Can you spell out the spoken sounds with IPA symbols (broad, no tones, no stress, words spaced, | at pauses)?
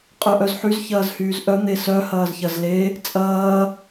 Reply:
qʼœʔœzħyz çɐːzhyːzʔœ n̪esœ hɐːzçɐzle | t͡sʼɐː